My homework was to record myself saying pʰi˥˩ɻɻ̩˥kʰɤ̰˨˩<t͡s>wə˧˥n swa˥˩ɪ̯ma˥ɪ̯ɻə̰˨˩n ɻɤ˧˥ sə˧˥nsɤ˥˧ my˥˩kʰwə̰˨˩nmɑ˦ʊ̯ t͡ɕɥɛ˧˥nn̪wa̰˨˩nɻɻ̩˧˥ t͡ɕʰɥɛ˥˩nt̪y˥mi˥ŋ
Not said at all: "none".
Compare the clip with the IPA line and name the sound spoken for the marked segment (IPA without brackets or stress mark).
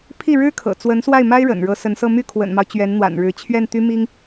t͡s